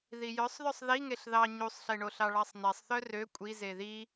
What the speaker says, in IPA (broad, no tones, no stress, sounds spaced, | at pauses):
ð i j œ sˤ ð œ sˤ ð i ŋ e ɬ ð ɑ ɲ u sˤ ɬ e ɳ o ɬ ɑ ɭ ɑ sˤ n ɛ sˤ θ œ r ø kʷʼ i z e ð i